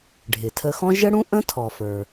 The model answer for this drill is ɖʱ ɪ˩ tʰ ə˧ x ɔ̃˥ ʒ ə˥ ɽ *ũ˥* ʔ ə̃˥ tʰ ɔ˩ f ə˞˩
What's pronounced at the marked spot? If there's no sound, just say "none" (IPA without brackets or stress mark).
ũ˥